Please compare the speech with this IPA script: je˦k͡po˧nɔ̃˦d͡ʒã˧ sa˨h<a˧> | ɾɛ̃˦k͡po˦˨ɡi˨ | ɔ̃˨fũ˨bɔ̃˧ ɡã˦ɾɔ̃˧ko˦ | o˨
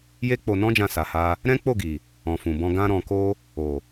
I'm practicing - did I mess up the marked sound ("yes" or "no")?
no